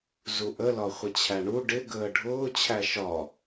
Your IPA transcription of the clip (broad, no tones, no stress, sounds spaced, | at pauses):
z u ʔ ə l ɒ χʷ ɪ t͡ɕʰ æ ɳ u ɖ ɪ ɡ əː ɖʱ ʊː t͡ɕʰ æ ʃ ɒ